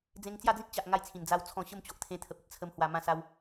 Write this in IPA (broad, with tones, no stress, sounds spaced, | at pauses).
d͡z ẽ˧ ŋ t͡s j a˥˧ d͡z ĩ˦ t̚ t͡ɕ a˨ ʔ ŋ a˥˧ j t͡sʰ ĩ˨˩ n d͡z a˦ w t͡sʰ ɔ̃˥˧ ɕ ə˥˧ m t͡ɕ o˨ ʔ t̪ʰ ẽ˧ t̪ʰ ə˨ p̚ ə˨ t̚ t͡sʰ ə˧ m h w a˧ m ã˥˧ s a˦ w